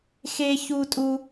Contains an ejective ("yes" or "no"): yes